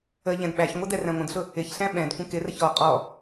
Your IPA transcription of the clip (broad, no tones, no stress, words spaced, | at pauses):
ə ʎɛ̃dɓæçŋʷɪ dɛræ̃ŋʷə̃dɬʊ | ɪçɬæ̃ ɓɛ̃d kʷə̃kɪrəç ɔ qʼɔ